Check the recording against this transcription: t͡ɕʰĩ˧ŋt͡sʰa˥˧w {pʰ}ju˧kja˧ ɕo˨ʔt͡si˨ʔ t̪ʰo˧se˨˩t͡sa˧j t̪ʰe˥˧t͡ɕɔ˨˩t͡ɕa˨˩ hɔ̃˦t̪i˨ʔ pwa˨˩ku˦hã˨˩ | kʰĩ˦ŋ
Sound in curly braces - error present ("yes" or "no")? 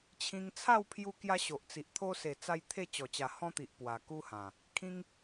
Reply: no